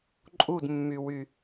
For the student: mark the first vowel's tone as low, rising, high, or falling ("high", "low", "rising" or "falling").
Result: falling